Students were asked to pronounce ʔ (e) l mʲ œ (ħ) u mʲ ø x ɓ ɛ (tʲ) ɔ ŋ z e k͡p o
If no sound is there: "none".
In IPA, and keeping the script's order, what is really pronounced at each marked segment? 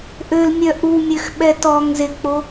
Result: ø, ʔ, t

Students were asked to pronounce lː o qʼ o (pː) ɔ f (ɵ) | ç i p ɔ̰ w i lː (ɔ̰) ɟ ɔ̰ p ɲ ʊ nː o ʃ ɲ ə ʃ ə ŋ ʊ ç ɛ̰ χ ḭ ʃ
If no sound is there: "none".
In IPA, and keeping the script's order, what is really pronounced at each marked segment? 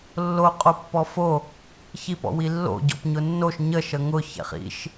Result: pː, o, o̰

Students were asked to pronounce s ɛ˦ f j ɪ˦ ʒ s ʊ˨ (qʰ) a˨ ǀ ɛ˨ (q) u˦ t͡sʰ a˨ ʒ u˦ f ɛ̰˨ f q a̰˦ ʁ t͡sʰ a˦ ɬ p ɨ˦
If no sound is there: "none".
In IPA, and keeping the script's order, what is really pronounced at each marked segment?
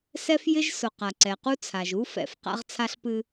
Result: q, q

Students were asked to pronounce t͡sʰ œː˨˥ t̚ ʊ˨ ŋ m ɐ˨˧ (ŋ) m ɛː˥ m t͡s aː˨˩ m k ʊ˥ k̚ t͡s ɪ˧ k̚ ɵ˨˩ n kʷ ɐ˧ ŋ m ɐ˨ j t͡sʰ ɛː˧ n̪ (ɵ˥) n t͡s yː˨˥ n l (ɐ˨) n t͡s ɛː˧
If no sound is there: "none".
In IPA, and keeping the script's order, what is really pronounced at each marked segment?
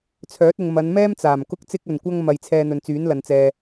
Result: n, ɵ˨, ɐ˨

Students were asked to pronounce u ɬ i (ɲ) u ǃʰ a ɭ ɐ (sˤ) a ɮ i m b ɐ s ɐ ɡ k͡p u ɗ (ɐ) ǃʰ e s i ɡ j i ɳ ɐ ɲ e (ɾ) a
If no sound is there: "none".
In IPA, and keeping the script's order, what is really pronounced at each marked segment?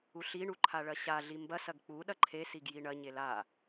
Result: ɳ, ɕ, ɐ, l

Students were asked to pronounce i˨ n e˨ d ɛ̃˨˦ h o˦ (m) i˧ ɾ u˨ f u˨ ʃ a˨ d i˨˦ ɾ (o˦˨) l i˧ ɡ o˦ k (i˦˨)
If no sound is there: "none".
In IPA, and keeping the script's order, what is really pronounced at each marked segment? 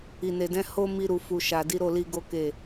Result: m, o˦˨, e˦˨

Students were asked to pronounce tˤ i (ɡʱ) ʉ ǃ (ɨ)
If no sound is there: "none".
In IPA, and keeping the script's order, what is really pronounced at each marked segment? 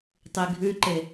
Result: ɡʱ, e

